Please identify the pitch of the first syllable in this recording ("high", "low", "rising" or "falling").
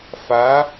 rising